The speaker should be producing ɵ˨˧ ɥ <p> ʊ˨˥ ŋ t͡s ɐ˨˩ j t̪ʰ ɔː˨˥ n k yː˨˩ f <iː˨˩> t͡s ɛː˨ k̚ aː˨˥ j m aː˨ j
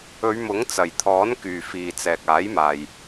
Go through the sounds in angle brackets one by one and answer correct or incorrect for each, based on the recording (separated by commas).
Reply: incorrect, correct